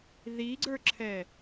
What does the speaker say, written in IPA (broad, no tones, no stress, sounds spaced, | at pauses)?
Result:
ð i ɡ͡ǀ ə˞ ǁʰ ɛ